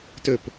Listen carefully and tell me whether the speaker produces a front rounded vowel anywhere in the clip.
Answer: yes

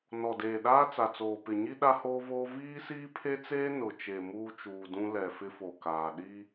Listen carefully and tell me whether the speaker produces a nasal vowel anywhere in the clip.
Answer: yes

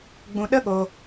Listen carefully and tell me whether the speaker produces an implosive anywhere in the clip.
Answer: yes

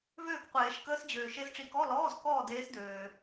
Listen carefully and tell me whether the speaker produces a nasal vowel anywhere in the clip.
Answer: no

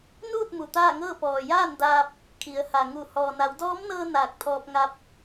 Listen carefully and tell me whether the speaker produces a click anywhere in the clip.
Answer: no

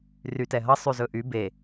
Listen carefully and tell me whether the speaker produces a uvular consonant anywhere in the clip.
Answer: no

